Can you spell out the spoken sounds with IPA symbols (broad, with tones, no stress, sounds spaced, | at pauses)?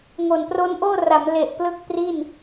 ŋ o˨˩ n p r o˦˥ n ʔ oː˥˩ r a˩˦ m l e˨˩ ʔ p l ɯ˦˥ k̚ p r i˥˩ n